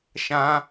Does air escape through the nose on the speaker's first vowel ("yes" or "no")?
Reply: yes